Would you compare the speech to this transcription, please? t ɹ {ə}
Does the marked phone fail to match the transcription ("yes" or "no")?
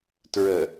no